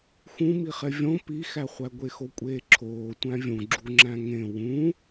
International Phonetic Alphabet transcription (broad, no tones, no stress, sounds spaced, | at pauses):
x ũ m i χ e vʲ õ p i x æ χʷ æ ɡʷ e x o kʷʼ eː ǁʰ oː tʷ æ̃ vʲ ũ ɡ͡ǁ u ŋ͡ǁ æ̃ ŋ ẽ w ũ